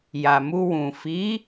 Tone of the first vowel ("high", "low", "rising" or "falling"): low